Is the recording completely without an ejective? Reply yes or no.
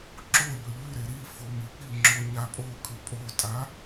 no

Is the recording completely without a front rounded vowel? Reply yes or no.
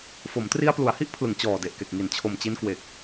yes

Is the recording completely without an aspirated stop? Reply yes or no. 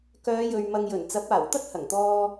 yes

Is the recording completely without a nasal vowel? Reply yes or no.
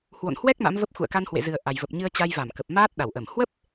yes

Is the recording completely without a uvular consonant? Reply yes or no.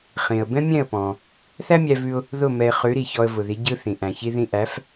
no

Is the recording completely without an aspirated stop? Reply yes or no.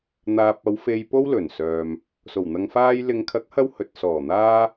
no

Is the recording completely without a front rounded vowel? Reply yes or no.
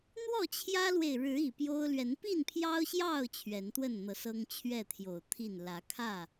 yes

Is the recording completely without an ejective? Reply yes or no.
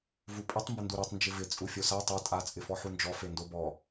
no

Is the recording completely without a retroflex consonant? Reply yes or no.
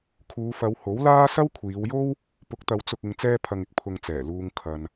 yes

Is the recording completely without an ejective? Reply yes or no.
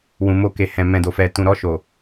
yes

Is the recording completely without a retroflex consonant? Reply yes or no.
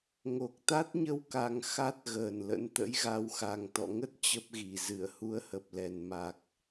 yes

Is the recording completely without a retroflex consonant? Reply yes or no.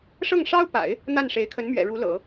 no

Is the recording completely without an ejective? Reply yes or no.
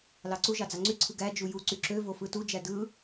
yes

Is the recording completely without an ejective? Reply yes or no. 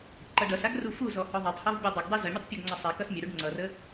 yes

